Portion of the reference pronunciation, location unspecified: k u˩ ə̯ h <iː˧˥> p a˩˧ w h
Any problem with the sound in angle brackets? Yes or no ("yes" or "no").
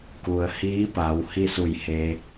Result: no